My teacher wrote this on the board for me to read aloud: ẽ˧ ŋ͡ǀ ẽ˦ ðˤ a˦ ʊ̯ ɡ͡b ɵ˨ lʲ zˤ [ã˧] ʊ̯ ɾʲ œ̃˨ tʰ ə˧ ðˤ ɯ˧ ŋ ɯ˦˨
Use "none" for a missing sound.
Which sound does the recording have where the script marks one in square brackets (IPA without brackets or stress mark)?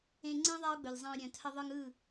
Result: ã˧